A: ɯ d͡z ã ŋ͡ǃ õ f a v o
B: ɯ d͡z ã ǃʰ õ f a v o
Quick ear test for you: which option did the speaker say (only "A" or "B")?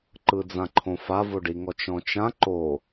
B